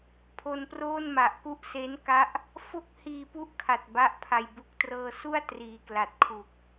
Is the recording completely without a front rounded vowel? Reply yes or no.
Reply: yes